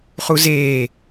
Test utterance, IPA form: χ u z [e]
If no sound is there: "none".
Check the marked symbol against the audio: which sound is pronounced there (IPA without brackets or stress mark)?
eː